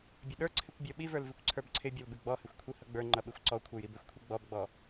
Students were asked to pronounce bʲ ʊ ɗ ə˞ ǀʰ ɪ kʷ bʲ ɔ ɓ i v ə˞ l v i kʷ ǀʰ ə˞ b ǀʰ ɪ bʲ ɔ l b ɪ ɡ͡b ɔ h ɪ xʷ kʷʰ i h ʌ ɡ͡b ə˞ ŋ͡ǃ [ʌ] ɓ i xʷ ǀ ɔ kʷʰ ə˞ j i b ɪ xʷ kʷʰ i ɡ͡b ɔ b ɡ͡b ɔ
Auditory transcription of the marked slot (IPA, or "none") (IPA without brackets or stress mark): ʌ